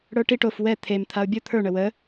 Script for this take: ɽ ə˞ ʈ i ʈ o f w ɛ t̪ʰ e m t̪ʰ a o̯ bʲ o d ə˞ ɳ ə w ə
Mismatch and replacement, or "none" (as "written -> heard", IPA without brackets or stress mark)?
d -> t̪ʰ